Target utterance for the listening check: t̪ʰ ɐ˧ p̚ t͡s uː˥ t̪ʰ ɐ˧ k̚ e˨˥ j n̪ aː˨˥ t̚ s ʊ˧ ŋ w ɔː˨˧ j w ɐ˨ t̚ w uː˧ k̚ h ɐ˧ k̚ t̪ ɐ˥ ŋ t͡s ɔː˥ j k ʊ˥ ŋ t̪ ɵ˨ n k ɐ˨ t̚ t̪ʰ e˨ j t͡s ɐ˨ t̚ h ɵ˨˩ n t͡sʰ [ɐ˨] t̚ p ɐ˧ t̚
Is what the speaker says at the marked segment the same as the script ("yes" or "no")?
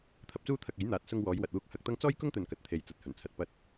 yes